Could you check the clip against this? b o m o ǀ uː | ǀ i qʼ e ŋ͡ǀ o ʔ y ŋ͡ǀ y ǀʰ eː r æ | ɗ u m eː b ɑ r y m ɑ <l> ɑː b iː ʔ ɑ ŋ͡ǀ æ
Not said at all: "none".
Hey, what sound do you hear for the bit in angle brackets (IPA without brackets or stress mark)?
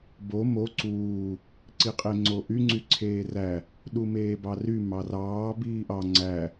r